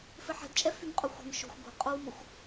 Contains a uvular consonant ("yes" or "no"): yes